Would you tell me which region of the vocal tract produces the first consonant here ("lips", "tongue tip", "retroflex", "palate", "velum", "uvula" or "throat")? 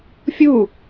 lips